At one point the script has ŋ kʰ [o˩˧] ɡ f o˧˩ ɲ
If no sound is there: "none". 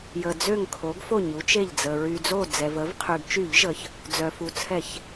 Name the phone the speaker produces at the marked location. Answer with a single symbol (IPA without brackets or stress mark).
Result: o˩˧